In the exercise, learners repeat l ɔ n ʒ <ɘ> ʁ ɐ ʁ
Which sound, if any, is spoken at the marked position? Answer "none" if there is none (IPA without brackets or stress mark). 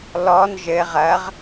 ɘ